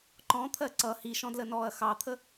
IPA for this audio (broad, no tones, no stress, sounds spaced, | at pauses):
ǃ ɔ̃ t̪ʰ ɜ ǀ ʌ h i ʃ ɔ̃ d l ə n ɔː ɐ̯ x ɑ t̪ʰ ə